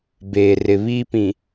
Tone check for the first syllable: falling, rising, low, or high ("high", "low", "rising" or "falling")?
low